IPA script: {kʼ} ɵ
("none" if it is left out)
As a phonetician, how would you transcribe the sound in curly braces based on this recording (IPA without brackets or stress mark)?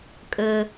kʼ